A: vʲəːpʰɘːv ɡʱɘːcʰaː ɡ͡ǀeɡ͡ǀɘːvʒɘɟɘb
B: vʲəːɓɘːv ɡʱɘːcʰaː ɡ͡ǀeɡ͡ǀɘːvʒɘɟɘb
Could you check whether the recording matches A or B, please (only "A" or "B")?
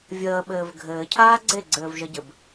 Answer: B